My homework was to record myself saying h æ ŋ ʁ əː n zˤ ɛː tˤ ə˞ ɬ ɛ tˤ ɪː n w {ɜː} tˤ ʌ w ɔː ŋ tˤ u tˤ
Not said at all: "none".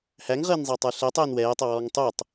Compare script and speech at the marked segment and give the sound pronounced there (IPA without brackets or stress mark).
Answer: ɛː